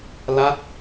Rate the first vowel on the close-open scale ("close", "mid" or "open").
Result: open